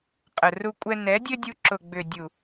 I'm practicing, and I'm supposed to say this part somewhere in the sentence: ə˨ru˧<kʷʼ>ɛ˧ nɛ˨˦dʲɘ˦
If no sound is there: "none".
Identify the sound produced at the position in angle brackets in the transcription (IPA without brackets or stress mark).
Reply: kʷʼ